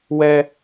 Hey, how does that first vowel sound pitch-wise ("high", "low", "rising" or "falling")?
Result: high